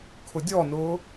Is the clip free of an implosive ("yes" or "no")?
yes